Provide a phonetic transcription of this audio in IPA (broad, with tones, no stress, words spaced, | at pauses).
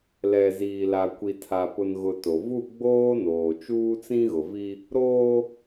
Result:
lɛ˨ziː˨la˨ kʷi˨tʰa˨pʊ˨n ɣʊ˨ to˨ vu˦˨ ɡ͡boː˦noː˨ t͡ʃuː˦t͡sĩ˦ɣʊ˨ vi˦ | ɾoː˦